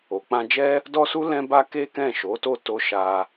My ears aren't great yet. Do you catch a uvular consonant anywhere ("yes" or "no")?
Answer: no